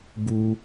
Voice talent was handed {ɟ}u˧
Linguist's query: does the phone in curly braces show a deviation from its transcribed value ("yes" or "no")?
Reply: yes